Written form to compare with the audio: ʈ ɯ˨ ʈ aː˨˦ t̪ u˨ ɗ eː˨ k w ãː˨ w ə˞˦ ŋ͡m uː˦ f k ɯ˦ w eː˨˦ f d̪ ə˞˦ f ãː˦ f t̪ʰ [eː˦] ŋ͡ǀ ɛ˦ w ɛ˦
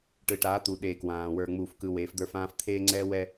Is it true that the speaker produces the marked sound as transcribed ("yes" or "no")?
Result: yes